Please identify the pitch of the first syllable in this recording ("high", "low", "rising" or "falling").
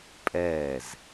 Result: falling